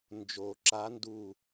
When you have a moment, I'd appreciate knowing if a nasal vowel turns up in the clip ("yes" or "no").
no